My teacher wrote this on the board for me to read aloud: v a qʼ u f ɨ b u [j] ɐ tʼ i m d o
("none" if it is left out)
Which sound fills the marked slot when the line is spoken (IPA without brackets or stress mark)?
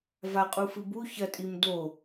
ç